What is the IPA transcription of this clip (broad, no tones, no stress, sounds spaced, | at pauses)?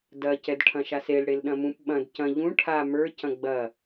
d ɐ c ɛ d ʈʰ ɐ̃ ʃ a s e l ɽ e l ɗ ɐ̃ m ũ p ɓ ɐ̃ d c ɐ̃ ʎ ũ ʈʰ a m ə˞ c ɐ̃ ɡ͡b ɐ